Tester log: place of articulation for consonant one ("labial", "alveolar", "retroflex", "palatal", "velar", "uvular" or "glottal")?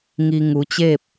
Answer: velar